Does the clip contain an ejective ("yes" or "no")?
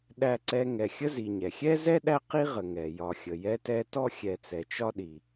no